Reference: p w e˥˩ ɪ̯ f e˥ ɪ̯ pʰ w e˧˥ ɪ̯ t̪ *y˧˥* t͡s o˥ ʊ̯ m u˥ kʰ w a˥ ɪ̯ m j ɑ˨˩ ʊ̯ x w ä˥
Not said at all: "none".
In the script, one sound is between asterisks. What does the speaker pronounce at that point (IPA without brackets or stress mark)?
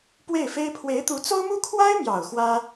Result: u˧˥